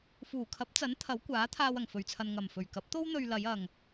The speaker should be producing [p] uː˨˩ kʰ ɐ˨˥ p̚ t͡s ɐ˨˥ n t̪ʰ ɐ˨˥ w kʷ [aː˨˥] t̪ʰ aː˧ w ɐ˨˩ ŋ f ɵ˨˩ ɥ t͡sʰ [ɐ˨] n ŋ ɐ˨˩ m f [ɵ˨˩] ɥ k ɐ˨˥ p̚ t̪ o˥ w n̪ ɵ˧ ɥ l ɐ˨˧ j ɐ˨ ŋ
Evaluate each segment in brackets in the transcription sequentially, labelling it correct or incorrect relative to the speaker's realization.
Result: incorrect: f, correct, correct, correct

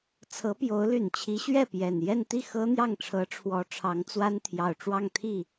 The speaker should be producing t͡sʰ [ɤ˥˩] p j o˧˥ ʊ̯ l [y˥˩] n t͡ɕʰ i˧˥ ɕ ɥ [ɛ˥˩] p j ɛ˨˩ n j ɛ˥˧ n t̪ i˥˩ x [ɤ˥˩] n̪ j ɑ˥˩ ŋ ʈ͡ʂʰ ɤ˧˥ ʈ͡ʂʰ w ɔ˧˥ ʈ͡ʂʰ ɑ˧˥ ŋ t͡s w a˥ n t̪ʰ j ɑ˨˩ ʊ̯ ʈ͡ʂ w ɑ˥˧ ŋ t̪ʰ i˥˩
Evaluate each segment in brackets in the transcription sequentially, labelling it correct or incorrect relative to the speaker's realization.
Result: incorrect: ɤ˧˥, incorrect: y˨˩, correct, incorrect: ɤ˥

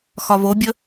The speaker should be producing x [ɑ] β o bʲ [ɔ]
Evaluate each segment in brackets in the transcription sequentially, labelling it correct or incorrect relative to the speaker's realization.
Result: incorrect: ɒ, incorrect: ə

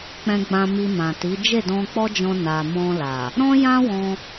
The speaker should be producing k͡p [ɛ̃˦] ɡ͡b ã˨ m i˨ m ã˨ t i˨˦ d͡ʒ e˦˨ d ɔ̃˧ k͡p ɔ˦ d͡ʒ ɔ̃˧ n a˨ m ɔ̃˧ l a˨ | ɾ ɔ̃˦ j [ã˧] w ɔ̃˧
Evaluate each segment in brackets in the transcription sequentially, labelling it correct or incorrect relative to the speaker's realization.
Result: incorrect: ɛ̃˨, incorrect: ã˦

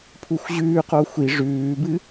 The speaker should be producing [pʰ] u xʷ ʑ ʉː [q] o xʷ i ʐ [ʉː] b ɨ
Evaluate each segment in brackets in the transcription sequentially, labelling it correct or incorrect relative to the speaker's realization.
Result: correct, correct, correct

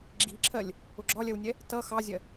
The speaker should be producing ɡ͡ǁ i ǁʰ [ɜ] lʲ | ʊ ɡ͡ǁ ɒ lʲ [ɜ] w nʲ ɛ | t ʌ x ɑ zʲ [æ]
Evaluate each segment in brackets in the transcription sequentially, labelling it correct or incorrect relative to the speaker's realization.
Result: correct, correct, incorrect: ɜ

